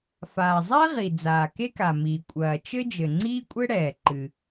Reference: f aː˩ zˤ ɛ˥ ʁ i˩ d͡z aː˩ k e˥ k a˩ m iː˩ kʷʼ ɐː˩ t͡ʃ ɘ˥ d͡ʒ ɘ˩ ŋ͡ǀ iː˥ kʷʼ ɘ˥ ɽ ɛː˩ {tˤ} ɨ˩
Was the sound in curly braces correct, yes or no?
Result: no